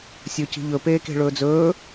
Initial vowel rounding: rounded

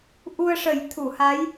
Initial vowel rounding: rounded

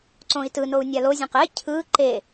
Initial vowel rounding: rounded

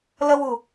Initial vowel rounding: unrounded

